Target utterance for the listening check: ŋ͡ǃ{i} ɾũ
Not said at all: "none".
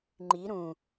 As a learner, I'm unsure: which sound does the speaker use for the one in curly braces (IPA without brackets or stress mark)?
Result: i